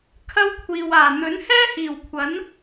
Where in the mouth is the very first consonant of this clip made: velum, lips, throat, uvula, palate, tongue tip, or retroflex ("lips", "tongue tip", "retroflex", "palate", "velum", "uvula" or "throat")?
velum